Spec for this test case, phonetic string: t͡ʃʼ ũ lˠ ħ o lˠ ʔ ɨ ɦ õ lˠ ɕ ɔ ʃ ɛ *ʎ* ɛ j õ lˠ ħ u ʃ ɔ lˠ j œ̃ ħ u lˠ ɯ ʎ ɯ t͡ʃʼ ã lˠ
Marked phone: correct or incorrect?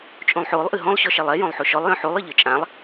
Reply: incorrect